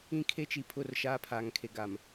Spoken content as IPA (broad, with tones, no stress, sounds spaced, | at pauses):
ĩ˦ kʰ e˦ t͡ʃ i˨ pʰ ʊ˦˨ r ʃ aː˦ pʰ aː˨ ŋ kʰ e˨ ɡ a˨ m